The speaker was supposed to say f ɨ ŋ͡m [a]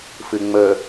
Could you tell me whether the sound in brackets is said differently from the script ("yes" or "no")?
yes